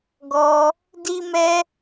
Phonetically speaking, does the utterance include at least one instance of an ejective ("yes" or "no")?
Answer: no